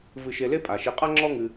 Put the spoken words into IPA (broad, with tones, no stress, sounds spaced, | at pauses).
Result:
v ɨ˨ ʃ e˨ l e˥ pʼ a˩ ʃ e˨ qʼ a˥ ŋ͡ǁ ɔ˦ ŋ ɨ˨